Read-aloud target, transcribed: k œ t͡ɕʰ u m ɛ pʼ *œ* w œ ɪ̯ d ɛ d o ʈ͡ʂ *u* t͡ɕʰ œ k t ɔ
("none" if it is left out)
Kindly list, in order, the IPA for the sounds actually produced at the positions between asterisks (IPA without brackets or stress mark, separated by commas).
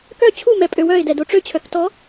ø, ø